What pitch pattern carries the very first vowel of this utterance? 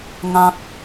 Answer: high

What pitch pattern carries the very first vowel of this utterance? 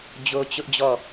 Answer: high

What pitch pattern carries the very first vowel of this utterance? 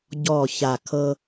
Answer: low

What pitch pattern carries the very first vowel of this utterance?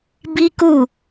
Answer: high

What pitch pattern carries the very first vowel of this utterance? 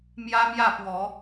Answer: high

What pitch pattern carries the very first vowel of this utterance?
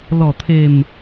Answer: low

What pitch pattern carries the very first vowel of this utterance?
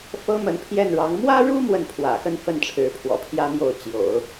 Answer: high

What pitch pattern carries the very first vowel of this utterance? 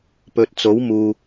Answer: low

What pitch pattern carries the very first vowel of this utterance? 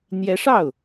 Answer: rising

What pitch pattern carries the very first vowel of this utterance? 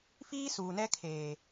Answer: high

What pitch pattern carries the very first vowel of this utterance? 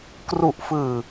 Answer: low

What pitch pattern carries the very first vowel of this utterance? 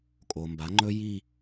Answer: low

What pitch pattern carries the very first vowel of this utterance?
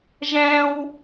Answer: high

